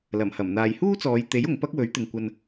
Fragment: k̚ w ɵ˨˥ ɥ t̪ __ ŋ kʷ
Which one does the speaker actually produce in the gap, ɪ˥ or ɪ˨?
ɪ˨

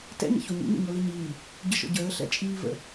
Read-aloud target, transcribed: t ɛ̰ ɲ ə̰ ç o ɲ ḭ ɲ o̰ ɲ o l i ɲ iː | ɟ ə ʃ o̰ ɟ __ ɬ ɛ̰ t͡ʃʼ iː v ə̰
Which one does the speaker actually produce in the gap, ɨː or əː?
əː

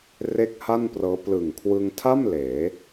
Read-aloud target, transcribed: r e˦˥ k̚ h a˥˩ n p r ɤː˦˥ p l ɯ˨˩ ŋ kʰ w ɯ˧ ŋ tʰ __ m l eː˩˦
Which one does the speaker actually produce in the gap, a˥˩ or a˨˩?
a˥˩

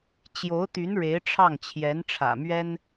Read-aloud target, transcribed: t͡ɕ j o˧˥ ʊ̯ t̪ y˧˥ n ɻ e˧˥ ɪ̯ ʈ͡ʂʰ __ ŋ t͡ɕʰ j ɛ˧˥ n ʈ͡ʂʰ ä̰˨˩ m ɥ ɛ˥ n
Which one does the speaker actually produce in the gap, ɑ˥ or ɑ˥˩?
ɑ˥˩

